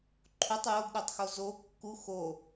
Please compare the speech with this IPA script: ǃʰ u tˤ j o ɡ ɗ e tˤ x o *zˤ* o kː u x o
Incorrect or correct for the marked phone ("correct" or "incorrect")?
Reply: incorrect